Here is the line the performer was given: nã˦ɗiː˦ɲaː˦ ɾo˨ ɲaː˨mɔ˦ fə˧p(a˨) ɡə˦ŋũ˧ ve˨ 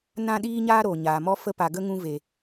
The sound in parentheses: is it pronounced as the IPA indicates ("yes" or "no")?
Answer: yes